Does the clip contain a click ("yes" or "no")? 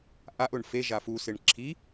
yes